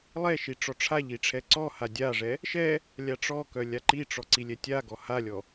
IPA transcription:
lˠ ɛ ʃ i ʈ͡ʂ ɔ ʈ͡ʂʰ a ʎ i ʈ͡ʂʰ ɛ ǀ ɔ h a dʲ a ʐ ɛ | ʃ ɛ | lʲ a ʈ͡ʂ ɔ k œ lʲ a ǃ i ʈ͡ʂ ɔ ǀ i lʲ ɛ tʲ a ɡ ɔ h a lʲ ɔ

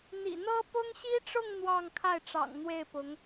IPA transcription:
n̪ ḭ˨˩ n̪ ɤ˥ p ʊ˥ ŋ ɕ i˥ ʈ͡ʂ ʊ˥˧ ŋ n̪ w ɑ˥˧ ŋ kʰ a˥˩ ɪ̯ ʈ͡ʂ ɑ̰˨˩ ŋ n̪ w e˥˩ ɪ̯ p ʊ˧˥ ŋ

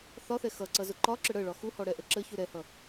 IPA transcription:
θ ɒ θ ɛ x ʌ ǀ ʌ z ʊ ǃ ɒ ǁ ə ɽ ə ɭ ɒ x u h ɔ ɽ ɛ ʔ ə ǁ ə ç u ɾ ɛ h ʌ

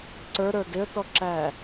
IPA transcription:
ǀ ə˞ ɾ ə˞ d ɪ ə̯ t ɔ ǁ æː

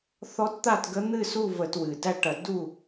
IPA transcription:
θ ɔ˧˥ t t̪ a˥˨ t ɡ ə˧˥ n̪ ɨ˥˨ s u˥˨ v ə˧˩˧ t w ɨ˩ d æ˥˨ ʈ ɐ˧˩˧ d u˥˨

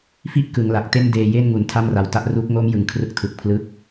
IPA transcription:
f i˥˩ ʔ k ɯ˩˦ ŋ l a˨˩ k̚ t e˥˩ n d eː˧ j e˥˩ n ŋ u˨˩ n tʰ a˥˩ m r a˨˩ w t a˥˩ ʔ r u˦˥ k̚ ŋ o˦˥ m j ɯ˩˦ ŋ kʰ r ɯ˦˥ k̚ tʰ ɯ˨˩ k̚ pʰ l ɯ˦˥ k̚

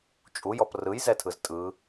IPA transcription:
t͡ʃʼ u j ɔ p r ɯ j z ɛ tʰ ɯ z tʼ ɯ

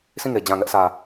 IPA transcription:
s ĩ˦˨ ŋ e˨ d͡ʑ ã˨ ŋ ɛ˦ ʔ s ä˨

